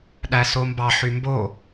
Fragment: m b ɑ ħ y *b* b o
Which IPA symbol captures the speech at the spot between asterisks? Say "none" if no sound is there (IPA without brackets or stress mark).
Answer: m